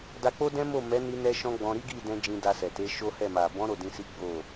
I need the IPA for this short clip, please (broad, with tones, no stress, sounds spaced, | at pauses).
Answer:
d a˧ k͡p o˦ d ɛ̃˦ m o˦˨ m ɛ˨˦ n i˧ n ɛ˦ ʃ ɔ̃˦ ɡ͡b ɔ̃˧ ɾ i˦ ɡ i˦˨ d ɛ̃˧ d͡ʒ ĩ˧ d a˧ s ɛ˨ t e˨˦ ʃ o˦ h ɛ˦˨ m a˨ b ɔ̃˨˦ ɾ o˦˨ d ĩ˧ s i˦ ɡ͡b o˦˨